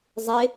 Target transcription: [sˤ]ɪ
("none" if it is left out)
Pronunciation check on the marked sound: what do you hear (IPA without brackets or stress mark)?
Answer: zˤ